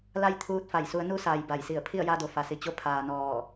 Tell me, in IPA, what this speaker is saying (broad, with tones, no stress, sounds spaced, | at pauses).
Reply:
l a˥˨ j t̪ʰ uː˧˥ t̚ f a˧˩ j s u˩˧ ə̯ n u˧ s aː˩ j b a˧˩ j s i˧˩ ə̯ pʰ i˥˨ ə̯ j a˧ d o˩ f a˩ s i˩ t͡ɕ o˧ pʰ aː˩ n ɔː˧˩